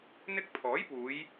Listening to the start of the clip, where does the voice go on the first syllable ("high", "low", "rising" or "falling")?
high